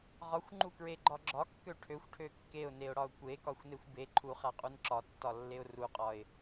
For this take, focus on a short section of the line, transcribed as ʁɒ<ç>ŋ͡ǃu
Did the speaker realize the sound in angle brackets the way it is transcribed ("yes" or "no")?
no